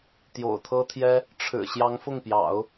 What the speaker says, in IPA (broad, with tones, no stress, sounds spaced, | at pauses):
t̪ j o̰˨˩ ʊ̯ t̪ʰ ɤ˥ t̪ʰ j ɛ˥ | ʈ͡ʂʰ ɻ̩˨˩ ɕ j ɑ˧˥ ŋ f ʊ˥˩ ŋ p j ɑ̰˨˩˦ ʊ̯